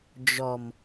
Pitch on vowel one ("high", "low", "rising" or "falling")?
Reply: low